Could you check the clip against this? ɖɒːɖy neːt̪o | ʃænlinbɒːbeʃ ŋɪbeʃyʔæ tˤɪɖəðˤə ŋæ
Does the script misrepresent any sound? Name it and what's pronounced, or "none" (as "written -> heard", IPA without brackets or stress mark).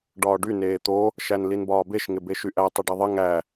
none